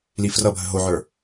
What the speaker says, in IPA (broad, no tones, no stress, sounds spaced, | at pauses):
l i f r ʌ bʱ ə ɦ o ʕ ə˞